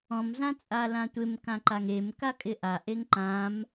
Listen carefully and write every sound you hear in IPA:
ɔ̃ m z ã t͡sʼ a l ã tʷ ɪ m k ã ǃ a ŋ e m k a kʼ ɪ ʔ a ʔ e ŋ ǃ ã m

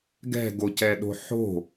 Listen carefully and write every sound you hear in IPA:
ɡ ɛ̤ ɡ o c ɛ ɗ o̤ ħ o̤

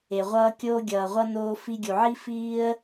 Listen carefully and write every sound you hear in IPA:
e˩ ʁʷ ʌː˧ kʲ oː˧ ɡʲ ʌː˩ ʁʷ ʌ˧ n oː˧ f i˧ ɡʲ u˩ ʕ i˥ f iː˥ ə̯

